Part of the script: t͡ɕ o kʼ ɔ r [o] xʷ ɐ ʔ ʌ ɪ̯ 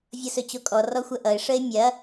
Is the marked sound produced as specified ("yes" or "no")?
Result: no